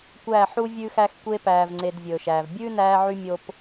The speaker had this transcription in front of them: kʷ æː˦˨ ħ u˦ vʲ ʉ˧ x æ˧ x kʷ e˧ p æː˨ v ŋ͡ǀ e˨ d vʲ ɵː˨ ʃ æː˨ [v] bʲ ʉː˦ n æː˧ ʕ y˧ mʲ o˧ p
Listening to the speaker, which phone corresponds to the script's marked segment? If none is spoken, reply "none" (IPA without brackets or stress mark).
v